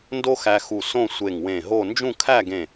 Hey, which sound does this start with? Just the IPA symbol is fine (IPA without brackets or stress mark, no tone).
n